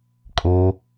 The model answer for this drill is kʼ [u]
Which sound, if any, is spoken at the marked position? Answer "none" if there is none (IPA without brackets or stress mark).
o